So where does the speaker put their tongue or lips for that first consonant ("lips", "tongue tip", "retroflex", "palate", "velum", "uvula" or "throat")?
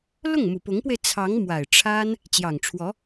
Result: tongue tip